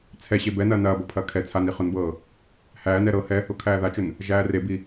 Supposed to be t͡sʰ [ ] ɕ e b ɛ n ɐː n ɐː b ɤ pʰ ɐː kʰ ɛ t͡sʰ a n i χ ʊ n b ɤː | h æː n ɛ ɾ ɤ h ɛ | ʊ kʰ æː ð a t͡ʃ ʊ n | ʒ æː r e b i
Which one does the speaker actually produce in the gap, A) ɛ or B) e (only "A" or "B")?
A